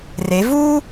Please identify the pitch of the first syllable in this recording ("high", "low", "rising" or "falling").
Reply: rising